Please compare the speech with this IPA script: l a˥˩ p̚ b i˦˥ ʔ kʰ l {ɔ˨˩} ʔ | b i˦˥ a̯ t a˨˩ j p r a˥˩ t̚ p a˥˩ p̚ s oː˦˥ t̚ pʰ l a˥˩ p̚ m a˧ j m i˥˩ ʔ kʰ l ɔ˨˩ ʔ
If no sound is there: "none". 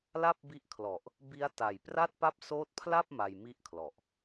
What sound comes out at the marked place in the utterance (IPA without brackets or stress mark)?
ɔ˨˩